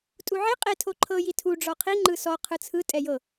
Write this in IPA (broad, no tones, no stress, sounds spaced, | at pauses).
tʼ u ʕ i qʼ e tʰ o ǃʰ ɤ j i tʰ u ɖ͡ʐ ɔ qʰ i ŋ͡ǃ ɯ s ɔ qʰ ɯ t͡sʰ ɯ tʼ ɛ j ɤ